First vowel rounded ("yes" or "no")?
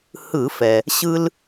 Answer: no